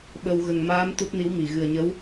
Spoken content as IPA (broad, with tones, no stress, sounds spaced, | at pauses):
ɓ ə˧ w ɣ ə˨˩ ŋ m aː˧˥ m t̪ u˦˥ t̚ n i˧˥ w m i˨˩˨ ɣ ɨ˨˩ ə̯ ɲ ə˧˥ w